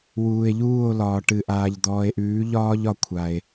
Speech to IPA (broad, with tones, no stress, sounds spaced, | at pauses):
w uː˨ e̯ ʎ uː˦˨ o̯ l ɒː˨ ʈ ɨ˨ ʔ aː˨ ʎ d̪ ɔː˨ e̯ ʔ ʉː˨˦ ʎ ɒː˦ ʎ ɒ˨ kʷʰ a˦ e̯